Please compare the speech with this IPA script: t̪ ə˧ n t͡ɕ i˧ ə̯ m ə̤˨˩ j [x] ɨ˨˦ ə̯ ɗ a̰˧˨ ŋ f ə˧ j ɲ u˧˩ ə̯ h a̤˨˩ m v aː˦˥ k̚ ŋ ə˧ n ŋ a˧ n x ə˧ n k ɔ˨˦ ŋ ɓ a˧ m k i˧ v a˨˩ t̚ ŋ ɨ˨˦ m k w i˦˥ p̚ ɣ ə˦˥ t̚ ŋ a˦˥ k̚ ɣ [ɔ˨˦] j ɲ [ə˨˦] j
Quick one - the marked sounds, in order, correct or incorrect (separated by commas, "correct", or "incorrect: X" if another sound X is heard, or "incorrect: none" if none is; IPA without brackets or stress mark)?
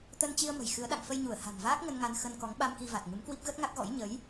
correct, incorrect: ɔ̰˧˥, correct